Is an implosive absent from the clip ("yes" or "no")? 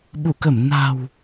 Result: no